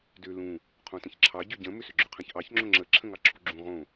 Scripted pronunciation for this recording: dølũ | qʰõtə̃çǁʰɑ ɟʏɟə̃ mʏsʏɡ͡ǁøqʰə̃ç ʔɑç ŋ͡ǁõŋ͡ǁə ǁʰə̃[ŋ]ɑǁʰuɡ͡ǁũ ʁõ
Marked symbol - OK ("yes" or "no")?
yes